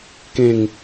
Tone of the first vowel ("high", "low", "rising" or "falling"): low